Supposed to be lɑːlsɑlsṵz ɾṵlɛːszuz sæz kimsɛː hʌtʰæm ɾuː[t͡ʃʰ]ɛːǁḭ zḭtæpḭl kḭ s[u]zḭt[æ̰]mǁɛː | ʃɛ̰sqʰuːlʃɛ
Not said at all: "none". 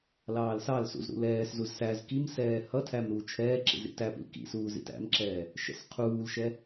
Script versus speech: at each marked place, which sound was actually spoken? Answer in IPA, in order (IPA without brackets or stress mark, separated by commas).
t͡ʃʰ, uː, æ̰